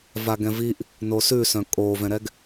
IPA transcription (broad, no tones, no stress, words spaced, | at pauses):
vaɡɛ̃viʔ | nosʉsœ̃ kʼovɛ̃ɾɛɡ